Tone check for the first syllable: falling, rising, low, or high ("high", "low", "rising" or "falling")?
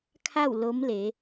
falling